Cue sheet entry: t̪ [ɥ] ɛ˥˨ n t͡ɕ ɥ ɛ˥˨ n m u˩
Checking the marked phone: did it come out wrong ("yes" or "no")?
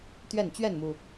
no